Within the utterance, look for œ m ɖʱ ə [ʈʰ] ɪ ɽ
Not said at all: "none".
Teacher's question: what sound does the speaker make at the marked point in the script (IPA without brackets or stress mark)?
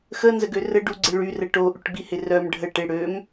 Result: ʈ